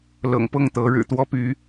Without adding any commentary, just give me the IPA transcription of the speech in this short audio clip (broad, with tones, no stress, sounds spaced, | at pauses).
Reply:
l ɤ̰˨˩ ŋ p ɤ˥˨ ŋ t̪ ɤ˨˦ ɻ ɻ̩˨˩ t̪ w ɔ˦ p y˨˦